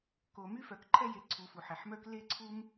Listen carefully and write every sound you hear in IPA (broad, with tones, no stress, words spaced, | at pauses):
ko˩my˥fœ˩k ǃʰɛ˥je˩ ǀʰu˩ fu˩ħɛ˩ħmœ˥k le˥ǀʰu˥m